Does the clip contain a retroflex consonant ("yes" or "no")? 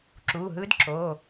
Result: no